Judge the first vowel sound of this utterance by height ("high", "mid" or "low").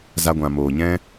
low